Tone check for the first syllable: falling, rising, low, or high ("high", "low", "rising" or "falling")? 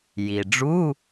low